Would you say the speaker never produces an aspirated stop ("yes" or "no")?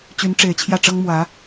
no